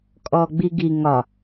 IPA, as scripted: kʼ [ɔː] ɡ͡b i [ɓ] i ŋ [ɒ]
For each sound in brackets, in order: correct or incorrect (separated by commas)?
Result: correct, incorrect, correct